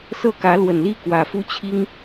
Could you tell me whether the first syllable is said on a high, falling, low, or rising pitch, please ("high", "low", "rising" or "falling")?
falling